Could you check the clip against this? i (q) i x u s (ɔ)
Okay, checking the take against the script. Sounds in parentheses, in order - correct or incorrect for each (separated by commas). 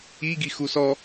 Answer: incorrect, correct